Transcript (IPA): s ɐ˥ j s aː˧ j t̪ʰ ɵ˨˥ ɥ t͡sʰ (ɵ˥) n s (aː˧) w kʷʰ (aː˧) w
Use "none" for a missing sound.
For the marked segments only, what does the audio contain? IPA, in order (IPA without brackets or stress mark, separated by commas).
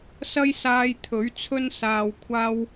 ɵ˥, aː˧, aː˥